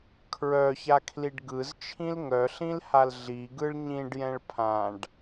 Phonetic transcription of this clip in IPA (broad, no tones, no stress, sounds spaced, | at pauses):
kʰ ɹ œ ç a kʰ l i ɖ ɡ ɯ z t͡ʃʰ ĩ l ŋ œ ɬ ĩ l h a l ɮ i ɡ ɯ ɭ ɲ ĩ ɖ j ɛ̃ ɭ pʰ ã ɖ